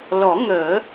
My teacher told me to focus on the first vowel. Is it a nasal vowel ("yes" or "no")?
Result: no